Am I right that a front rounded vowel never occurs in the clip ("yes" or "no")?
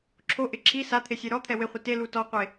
yes